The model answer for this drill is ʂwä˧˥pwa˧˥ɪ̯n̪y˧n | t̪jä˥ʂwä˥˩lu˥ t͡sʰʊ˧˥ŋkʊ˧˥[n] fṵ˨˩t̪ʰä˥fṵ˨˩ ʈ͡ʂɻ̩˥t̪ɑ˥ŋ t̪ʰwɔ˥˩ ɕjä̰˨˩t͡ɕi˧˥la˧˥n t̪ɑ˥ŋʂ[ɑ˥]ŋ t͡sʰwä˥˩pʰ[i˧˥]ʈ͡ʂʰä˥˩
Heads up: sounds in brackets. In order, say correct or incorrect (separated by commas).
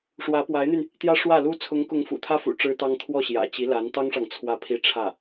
incorrect, incorrect, incorrect